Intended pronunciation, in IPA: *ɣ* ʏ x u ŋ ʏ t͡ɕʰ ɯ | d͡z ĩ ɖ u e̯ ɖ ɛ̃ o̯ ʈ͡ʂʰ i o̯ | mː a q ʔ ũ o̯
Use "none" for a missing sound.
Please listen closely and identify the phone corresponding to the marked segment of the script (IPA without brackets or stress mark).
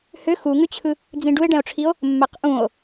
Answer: h